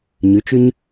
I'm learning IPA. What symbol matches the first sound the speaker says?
ɲ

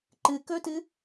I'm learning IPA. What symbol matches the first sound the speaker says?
ǃ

